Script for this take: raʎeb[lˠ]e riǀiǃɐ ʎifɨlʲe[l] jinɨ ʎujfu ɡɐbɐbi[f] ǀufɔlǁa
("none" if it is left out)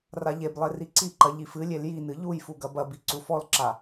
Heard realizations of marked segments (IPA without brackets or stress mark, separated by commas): lˠ, l, none